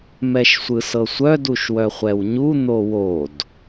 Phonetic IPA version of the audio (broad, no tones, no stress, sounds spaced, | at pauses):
m ɛ ʃ sʷ ɯ s ɤ sʷ œ d u ʃ w œ χʷ ɛ w ɲ u n̪ o w o d